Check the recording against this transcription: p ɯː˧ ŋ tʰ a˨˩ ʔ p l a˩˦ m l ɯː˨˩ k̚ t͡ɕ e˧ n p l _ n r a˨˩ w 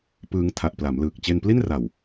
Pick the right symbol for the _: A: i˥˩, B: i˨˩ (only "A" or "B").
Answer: A